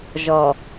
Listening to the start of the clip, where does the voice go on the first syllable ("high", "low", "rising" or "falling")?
low